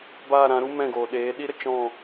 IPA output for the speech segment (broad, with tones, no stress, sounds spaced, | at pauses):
b aː˦˨ ɾ ã˨˦ ɾ u˦ m ɛ̃˦˨ ɡ oː˨ ɗ eː˨˦ ɗ i˦ ɾ ə˨ t͡ʃ ɔ̃˦˨